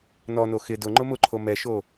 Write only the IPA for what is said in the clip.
n ɔ n o x ɪ d ʊ ŋ͡ǃ ʊ m ʊ ǃʰ o m ɛ ʃ o

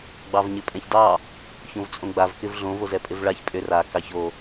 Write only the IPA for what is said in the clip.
ɡ͡b ɑ v ɲ ɪ pʼ ɛ̃ ç d ɑ | ç õ v t͡sʼ õ ɡ͡b a v k ɪ v ɮ õ v o z ɛ pʼ ɪ v ɭ a ç pʼ ʏ r a k ɑ ç o

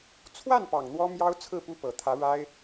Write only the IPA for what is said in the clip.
t͡sʰ w a˥˩ n p ɑ˨˩ ŋ n̪ w ɔ˥ m j ɑ˥ ʊ̯ t͡sʰ ɹ̩˥˩ p u˥ p ɤ˨˩ t̪ʰ ä˧˥ ɻ a˥ ɪ̯

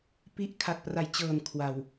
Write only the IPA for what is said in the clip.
p i˦˥ ʔ kʰ a˨˩ t̚ p r a˨˩ j t͡ɕ ɤː˨˩ n kʰ w a˨˩ w

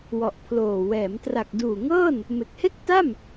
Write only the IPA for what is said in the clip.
w ɔ˨˩ ʔ pʰ l oː˨˩ w ɛː˩˦ m t r a˨˩ k̚ d uː˨˩ ŋ ɤː˥˩ n | m e˨˩ k̚ h e˥˩ k̚ t a˥˩ m

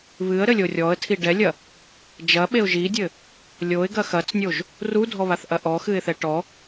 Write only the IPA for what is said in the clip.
β ɨ ə̯ ɾ ɘ lʲ o rʲ ɔ ə̯ tʰ i ɖ ɛ lʲ ɐ | d͡ʒ ɐ ɓ e ʊ̯ ʒ i dʲ ɘ | lʲ o ɪ̯ ɡ ɐ x ɐ t͡s nʲ o ʒ | r u dʱ ɔ β a θ ʔ ɐ ʔ ɔ x ɨ ɪ̯ θ ɛ ʈ ɔ

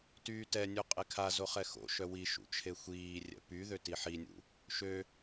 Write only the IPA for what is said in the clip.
t yː t ɛ nʲ ø qʼ e kʰ a z o χ ɛ x o̰ ʃ œ w i ʃ ṵ t͡ʃʰ e xʷ iː rʲ ɛ̰ p y ð ø t i ħ i nʲ ṵ | ʃ ø

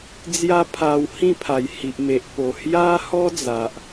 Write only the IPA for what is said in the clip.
d͡z j a˦ pʰ a˧ w h ĩ˥˧ pʰ a˨˩ j h i˨ ʔ m e˨ ʔ p o˨˩ h j a˦ h ɔ˦ d͡z a˨ ʔ

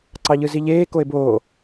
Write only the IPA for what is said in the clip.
ǀ ɑ ʎ ɯ z i ʎ eː k o e̯ b oː

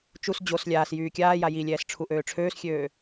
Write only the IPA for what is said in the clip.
t͡ʃ u s d͡ʑ o s lʲ aː s j yː kʲ aː j a j i lʲ ɛː s ʈ͡ʂʰ u ʔ øː ʈ͡ʂʰ øː s xʲ øː

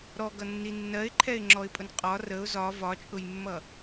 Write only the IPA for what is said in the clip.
ɾ ɔ ɡ ʌ nː i nː ɜ ɪ̯ ǃʰ ɛ ɪ̯ ŋ͡ǁ ɔ ɪ̯ pʼ ʊ n qʼ ɒ r ə ʊ̯ z ɒ v ɒ t͡ʃʼ ʊ j mː ʌ

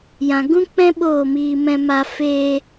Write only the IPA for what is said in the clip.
j ã˨ ɡ ũ˦ k͡p ɛ̃˦ ɓ oː˦˨ m iː˧ m ɛ̃˧ m a˧ f eː˧

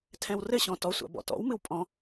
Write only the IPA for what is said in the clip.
tʰ ɛ̃ w r ɘ ɕ ɔ̃ t ɔ sʷ a̰ b ɔ̰ t ɔ̰ w m ɨ w pʼ ɔ̃

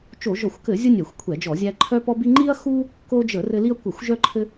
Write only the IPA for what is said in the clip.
t͡ʃ o˧˩˧ ʒ ɔ˧˩˧ xʷ k ɘ˧˩˧ zʲ ə˦ nʲ ɛ˧˩˧ xʷ kʷʰ ɛ˧˩˧ d͡ʒ ɔ˧˩˧ zʲ æ˦ ǃʰ œ˦ p ɔ˦ b i˦ ŋ͡ǃ i˦ ɐ̯ x u˦ | k o˦ d͡ʒ ə˧˩˧ r ɘ˦ l i˦ ɐ̯ kʷ ɘ˧˩˧ xʷ ʒ œ˦ ǃʰ ɘ˦

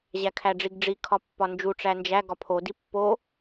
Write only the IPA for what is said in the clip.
ʑ æ kʰ æ ɖ͡ʐ i ɡ ɖ͡ʐ i kʰ ɒ pː ɒ n d͡ʒ u ʈ͡ʂ æ n d͡ʒ æ ɡ ɒ pʰ o d i pː o

